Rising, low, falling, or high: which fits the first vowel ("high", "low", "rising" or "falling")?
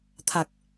low